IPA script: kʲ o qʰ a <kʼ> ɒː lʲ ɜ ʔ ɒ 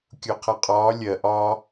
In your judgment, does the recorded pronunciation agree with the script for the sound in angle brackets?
no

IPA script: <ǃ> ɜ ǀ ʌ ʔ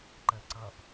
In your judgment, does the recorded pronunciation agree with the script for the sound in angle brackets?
yes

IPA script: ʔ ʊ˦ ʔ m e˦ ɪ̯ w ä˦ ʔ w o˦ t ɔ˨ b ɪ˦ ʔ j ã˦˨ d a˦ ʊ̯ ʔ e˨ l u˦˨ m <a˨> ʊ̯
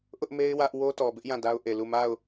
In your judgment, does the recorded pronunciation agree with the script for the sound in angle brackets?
no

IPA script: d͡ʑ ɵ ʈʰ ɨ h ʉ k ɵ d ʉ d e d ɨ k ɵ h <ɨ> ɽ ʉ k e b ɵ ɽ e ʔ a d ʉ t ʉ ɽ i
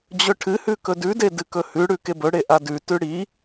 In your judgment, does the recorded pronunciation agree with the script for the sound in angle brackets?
no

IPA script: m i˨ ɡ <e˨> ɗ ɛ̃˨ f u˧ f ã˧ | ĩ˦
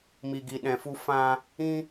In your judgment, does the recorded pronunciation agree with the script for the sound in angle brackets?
no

